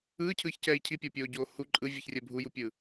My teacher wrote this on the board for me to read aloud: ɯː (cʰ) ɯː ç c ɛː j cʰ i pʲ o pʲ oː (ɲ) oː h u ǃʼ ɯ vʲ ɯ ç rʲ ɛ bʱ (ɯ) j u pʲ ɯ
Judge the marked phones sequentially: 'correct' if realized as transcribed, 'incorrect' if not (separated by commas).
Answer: correct, incorrect, incorrect